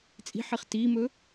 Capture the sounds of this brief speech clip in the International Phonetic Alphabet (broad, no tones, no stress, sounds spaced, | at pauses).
t͡sʼ i̤ ħ i χ t i m ɵ